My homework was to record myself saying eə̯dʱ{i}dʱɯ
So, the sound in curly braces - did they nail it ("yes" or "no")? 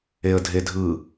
no